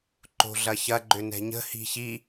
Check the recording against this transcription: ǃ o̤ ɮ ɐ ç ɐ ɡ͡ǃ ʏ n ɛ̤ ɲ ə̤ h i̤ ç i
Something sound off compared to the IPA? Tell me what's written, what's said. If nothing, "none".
none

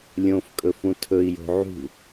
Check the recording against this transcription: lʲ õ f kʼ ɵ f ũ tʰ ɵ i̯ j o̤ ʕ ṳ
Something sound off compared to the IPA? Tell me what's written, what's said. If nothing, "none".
none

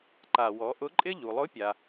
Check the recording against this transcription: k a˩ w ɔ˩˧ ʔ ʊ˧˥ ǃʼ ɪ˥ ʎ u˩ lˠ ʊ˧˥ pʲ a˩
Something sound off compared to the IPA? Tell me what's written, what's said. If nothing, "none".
k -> ǃ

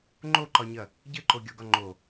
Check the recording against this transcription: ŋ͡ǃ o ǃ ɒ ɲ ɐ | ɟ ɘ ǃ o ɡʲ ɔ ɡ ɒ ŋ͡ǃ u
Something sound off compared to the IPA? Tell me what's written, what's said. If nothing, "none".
u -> o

